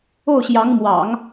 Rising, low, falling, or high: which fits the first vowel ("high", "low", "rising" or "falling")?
falling